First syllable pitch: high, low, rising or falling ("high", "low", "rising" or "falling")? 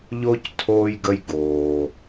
high